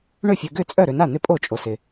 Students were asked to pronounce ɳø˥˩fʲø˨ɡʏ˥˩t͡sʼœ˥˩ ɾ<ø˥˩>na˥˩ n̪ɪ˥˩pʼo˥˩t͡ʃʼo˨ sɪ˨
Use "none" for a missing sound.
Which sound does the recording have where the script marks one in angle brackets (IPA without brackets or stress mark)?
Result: ø˨